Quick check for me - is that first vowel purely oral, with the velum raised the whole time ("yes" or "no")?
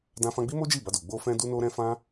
no